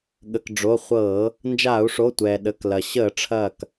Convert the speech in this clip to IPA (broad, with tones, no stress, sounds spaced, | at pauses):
ɠ ə˩ k ɖ͡ʐ o˩˧˩ χʷ ɤː˧˩˧ | n d͡ʒ aː˧˩˧ u̯ ʂ o˩˧˩ tʷ ɛː˩ ɗ ə˩˧˩ k l ɐ˩ ɕ əː˧˩˧ ʈ͡ʂʰ ɐː˧˩ k